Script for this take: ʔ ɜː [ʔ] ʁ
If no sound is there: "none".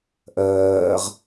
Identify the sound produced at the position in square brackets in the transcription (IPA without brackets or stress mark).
none